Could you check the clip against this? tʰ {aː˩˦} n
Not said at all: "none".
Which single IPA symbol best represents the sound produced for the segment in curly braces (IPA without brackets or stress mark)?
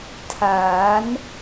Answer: aː˩˦